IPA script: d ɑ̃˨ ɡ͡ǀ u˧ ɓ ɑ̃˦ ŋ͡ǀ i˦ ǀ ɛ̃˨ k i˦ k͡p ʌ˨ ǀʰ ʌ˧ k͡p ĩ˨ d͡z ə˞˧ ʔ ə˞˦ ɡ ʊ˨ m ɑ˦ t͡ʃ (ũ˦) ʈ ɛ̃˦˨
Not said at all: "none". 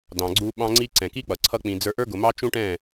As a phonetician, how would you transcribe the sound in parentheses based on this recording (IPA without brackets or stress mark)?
ũ˦